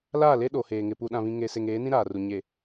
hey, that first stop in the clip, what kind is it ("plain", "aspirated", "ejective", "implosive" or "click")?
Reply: implosive